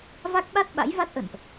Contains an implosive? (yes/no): yes